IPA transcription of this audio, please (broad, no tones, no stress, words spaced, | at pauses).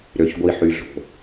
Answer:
ɾøçɡʷiħyɮo̤